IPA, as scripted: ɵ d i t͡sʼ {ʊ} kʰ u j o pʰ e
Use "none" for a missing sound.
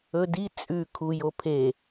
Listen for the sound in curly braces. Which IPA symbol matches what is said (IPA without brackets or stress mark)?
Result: ʉ